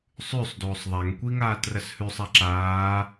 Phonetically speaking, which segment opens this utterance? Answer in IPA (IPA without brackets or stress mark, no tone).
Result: sˤ